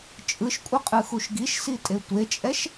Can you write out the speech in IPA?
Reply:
t͡ʃʼɯʃkʷʼɯqʼɯxuʃ ɡiʃsitʼe tʷet͡ʃʼɛʃ

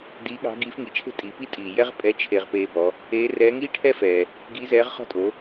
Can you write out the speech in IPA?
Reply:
diː˧˥ɠɑ̤˧˥ɡiː˧˥f ŋi˩t͡ʃʰe̤˥ tʼi˩˧pi˥tʼiː˩ jɛ˥ʁpʼɛ˧˥ t͡ʃʰe˧ʁpeː˧bɔ˩˧ | eː˧˥rɛː˧˥ ŋiː˥ʈʰɛ˥fɛː˩ | ɡi˧˥zɛː˧˥ʁχɔ̤˥ tʼo˩˧

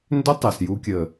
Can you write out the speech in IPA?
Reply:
ndʏ˦tˤɛ˨sju˧ kʲə˨

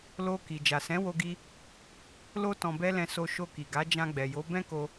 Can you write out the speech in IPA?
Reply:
lo˧ ki˨ d͡ʒa˨sɛ̃˨˦wo˧ɡi˧ | lo˦ tɔ̃˧bɛ˦lɛ̃˧so˧ ʃo˧ki˨ɡa˨˦ d͡ʒã˧ɡ͡bɛ˨jo˨˦ bɛ̃˦ko˧

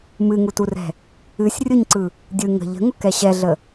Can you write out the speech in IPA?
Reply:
mɨŋuturɛ̤ | ɨsʲ rʲʊɲǀɯ | dʲɯ ŋə̤ ʎə̤ŋʊkɛ ɕɛɮə

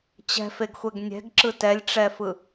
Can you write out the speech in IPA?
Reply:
t͡ɕɛ̤feɡxʷɛɡ nʲɛ̤ɡǁɯ tɛlʲʈ͡ʂɛfɯ

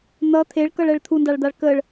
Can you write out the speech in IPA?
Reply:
n̪ʌ t̪ʰeɭkʌɭɛɭ t̪ʰundaɭd̪aɭ kəɭ

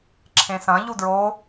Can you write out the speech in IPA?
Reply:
ǁʰẽsɐ̃ ʎudɹo

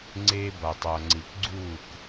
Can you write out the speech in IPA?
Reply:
ŋ͡ǀe˧ ba˨tˤa˨ ŋ͡ǀi˨kɡ͡ǀuː˦˨k

